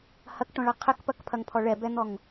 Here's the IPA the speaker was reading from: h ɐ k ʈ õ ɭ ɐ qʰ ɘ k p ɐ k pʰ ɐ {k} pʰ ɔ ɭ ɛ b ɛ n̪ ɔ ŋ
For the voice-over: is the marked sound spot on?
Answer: no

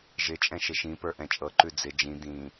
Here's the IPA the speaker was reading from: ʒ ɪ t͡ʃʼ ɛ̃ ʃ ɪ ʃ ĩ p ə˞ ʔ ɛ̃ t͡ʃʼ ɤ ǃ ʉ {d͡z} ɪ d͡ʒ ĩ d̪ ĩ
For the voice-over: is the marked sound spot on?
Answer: yes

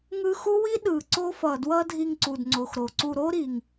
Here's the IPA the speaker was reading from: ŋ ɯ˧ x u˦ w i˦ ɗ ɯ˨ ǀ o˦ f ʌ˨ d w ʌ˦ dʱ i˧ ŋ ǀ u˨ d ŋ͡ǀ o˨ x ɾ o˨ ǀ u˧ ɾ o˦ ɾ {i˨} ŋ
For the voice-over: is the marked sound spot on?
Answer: yes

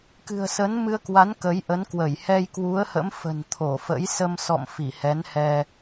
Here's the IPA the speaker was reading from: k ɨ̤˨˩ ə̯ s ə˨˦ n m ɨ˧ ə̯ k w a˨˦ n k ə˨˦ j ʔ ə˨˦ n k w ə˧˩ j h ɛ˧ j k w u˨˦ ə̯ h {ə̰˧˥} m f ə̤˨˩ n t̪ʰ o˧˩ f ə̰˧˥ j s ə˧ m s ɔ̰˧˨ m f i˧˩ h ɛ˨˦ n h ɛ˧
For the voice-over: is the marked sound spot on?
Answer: yes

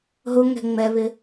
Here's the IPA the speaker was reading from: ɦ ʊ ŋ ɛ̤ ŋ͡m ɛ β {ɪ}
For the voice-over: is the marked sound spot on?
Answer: yes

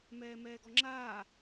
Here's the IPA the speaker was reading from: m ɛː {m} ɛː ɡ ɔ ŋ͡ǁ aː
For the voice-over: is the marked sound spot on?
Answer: yes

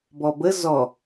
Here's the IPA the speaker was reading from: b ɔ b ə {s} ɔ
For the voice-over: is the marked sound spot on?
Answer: no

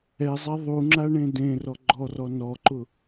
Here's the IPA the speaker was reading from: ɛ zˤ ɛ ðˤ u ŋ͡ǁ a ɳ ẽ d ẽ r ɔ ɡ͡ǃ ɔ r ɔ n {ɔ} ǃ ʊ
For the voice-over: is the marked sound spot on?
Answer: yes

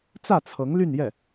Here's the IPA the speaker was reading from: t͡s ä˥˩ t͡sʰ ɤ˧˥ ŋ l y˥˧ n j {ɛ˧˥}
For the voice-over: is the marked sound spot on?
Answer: no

